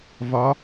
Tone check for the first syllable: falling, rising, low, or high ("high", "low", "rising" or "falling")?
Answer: rising